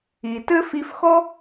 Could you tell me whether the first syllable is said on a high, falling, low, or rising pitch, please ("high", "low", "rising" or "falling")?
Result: low